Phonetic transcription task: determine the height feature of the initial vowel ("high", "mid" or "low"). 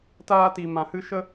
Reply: low